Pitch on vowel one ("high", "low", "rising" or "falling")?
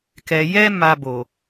low